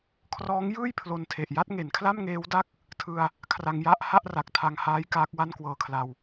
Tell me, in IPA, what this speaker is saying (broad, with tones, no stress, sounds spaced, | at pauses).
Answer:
kʰ r ɔː˦˥ ŋ j ɯː˥˩ j pʰ l o˧ n tʰ e˨˩ ʔ j a˥˩ t̚ ŋ e˩˦ n kʰ l a˥˩ m ŋ eː˦˥ w d a˥˩ k̚ | tʰ ɯ˧ a̯ | kʰ r a˧ ŋ j a˥˩ ʔ h a˥˩ ʔ r a˨˩ k̚ tʰ a˧ ŋ h aː˦˥ j k aː˦˥ k̚ w a˥˩ n k w ɤː˧ kʰ l a˧ w